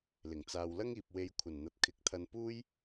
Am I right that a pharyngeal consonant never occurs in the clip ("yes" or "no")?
yes